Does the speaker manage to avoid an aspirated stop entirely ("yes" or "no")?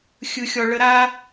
yes